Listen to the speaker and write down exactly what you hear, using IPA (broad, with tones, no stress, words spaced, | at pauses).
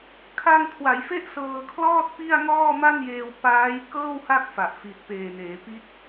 kʰa˧ŋ kʰwa˩˦jfe˦˥ʔ sɤː˧kʰlɔː˥˩t̚ pi˥˩a̯ŋɔː˥˩ma˥˩njeː˧w paː˦˥j kɤː˥˩wha˥˩k̚ fa˨˩ʔfi˨˩t̚ peː˨˩neː˩˦pi˦˥t̚